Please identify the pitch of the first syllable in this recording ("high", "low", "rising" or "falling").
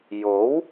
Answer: rising